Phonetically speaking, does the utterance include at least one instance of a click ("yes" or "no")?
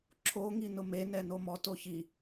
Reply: yes